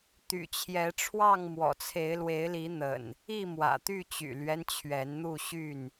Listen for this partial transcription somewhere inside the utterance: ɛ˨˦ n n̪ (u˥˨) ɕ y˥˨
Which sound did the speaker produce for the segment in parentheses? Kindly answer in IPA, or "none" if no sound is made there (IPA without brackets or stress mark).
u˥˨